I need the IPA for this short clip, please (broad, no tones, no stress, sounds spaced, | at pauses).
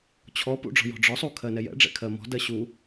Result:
t͡ɕʰ ɔ p ṵ ɖ͡ʐ ɔ̤ j ɔ̤ ɖ͡ʐ ɔ sˤ u kʰ ɜ n ɛ j ɛ̰ ɖ͡ʐ ɛ̰ kʰ ɜ m ɔ̤ d ɜ ɕ u